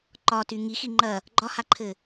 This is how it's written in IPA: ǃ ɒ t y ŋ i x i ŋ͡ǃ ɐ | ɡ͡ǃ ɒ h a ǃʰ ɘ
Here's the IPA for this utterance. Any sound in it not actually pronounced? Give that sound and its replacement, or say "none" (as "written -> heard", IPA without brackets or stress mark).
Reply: none